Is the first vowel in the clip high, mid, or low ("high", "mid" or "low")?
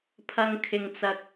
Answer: low